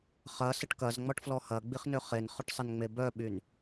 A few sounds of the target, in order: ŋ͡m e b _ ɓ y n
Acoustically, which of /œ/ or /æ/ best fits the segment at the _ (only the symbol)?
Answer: œ